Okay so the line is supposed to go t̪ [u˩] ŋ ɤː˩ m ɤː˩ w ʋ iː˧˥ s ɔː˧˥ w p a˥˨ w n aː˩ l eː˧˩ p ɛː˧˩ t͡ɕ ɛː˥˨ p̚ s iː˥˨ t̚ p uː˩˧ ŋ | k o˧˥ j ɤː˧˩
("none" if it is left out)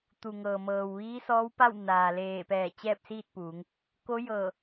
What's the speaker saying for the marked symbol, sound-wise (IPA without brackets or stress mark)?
u˩